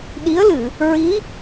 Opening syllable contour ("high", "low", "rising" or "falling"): rising